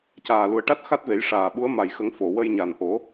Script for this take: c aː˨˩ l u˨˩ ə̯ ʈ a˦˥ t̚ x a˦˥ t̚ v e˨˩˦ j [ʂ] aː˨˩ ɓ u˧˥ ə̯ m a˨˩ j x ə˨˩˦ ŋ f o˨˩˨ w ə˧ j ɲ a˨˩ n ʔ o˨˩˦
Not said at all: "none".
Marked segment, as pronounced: ʂ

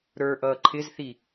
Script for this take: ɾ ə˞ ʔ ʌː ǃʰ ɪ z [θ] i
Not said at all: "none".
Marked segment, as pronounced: θ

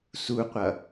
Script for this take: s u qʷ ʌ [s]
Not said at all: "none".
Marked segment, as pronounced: none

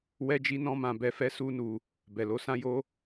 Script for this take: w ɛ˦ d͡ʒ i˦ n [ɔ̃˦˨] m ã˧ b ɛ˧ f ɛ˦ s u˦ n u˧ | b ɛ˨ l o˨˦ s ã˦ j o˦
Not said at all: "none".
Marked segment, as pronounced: ɔ̃˦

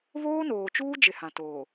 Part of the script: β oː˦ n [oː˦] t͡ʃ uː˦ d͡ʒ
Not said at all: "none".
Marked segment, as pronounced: oː˨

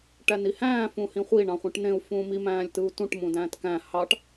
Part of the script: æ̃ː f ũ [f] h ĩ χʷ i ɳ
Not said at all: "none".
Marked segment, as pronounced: none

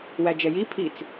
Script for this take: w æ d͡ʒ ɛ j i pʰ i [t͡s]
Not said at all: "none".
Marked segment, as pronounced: t͡s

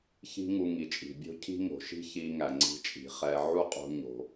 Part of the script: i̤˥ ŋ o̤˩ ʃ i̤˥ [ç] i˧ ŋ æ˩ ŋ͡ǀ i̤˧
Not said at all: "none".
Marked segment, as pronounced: ç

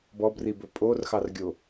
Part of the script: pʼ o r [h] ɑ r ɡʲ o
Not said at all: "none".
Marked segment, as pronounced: x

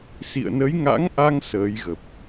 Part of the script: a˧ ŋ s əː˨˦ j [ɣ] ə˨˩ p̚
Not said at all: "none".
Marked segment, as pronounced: ɣ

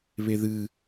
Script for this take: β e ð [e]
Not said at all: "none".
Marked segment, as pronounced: ɨ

